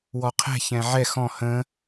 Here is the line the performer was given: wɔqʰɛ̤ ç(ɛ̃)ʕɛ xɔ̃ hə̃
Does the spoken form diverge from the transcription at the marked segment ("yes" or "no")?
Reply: no